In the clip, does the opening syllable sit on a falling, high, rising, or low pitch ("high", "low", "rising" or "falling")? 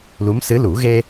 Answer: rising